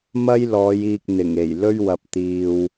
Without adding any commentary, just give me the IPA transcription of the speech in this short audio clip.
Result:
mɐ˥jlɔː˨˧j iː˧k̚n̪ɪ˨˩ŋe˨˩j lɵ˥ɥwɐ˧p̚t̪iː˧w

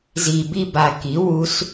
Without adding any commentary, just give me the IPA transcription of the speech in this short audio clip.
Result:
zi˨˩bi˥˧ba˨˩ ki˩˥ wu˧˥s

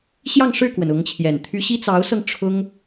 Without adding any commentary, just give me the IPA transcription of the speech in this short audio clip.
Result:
ɕjɑ˥˧ŋʂɻ̩˥˩kwə˩n ʊ˧˥ŋt͡ɕʰjɛ˨˩nt̪ʰy˥ ɕi˥t͡sɑ˧˥ʊ̯sɤ˧ŋ ʈ͡ʂʰʊ˥ŋ

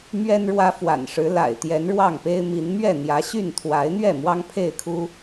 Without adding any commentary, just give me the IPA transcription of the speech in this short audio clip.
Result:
mɥɛ˦nɻwä˦fwa̰˨˩nʂɻ̩˨˦ la̰˨˩ɪ̯ t̪jɛ˨˦nɻwɑ˥˨ŋpe˦ɪ̯ mi˨˦n mɥɛ˥˨n̪jä˨˦ɕy˥˨n t̪ʰwa˨˦ɪ̯n̪ɥɛ˥˨ mwɑ˦ŋpʰe˥˨ɪ̯kʰu˦

